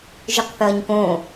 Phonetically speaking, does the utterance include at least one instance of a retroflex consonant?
no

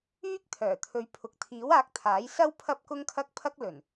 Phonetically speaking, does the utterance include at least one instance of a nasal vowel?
no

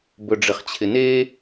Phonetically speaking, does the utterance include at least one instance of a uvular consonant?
yes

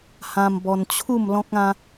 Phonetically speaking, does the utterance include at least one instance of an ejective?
no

